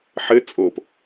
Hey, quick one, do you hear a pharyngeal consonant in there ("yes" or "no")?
yes